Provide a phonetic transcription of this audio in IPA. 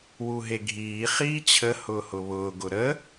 w u ɦ e ɡʱ iː χ iː t͡ɕʰ ə h ʊː h ʊ β ʊː ɡ ʊ ɾ ə

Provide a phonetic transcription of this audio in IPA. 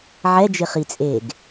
ʕ ɛ d͡ʒ ɪ χ i t͡sʼ eː ɡ

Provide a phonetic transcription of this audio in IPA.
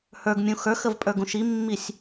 h ə˞ ɡ mʲ ũ x ə˞ x ə v pʼ ə˞ ɡ ũ ʃ i mː i sʲ

